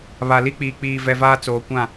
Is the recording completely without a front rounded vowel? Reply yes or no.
yes